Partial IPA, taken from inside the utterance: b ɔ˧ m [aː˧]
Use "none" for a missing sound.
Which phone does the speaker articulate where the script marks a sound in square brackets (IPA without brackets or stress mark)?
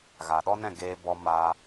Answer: aː˧